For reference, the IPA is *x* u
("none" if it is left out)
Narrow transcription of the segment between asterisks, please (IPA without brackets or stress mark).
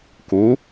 k